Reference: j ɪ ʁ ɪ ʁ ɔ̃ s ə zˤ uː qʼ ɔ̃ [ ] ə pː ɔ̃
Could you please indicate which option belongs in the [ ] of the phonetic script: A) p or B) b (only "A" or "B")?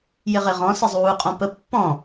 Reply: A